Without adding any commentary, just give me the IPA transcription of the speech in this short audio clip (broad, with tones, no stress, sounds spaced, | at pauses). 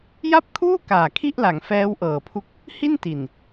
j a˥˩ p̚ kʰ uː˥˩ k aː˨˩ kʰ i˥˩ ʔ l a˩˦ ŋ f ɛː˦˥ w ʔ ɤː˨˩ pʰ u˦˥ k̚ | h i˥˩ n t i˨˩ n